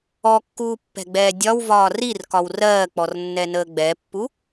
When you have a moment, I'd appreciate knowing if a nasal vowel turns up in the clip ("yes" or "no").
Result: no